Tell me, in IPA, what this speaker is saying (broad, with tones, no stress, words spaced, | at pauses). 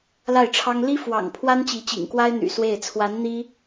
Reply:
la˥˩ɪ̯ʈ͡ʂʰɑ˥ŋ li˥ fwɑ̰˨˩ŋ pʰwa˥nt͡ɕi˧˥t͡ɕḭ˨˩ŋkwa˥ɪ̯ n̪y̰˨˩ swe˥˩ɪ̯ t͡sʰwa˧˥n n̪i˥